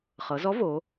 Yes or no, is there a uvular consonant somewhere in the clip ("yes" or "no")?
yes